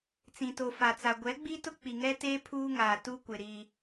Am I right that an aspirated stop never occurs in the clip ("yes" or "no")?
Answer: no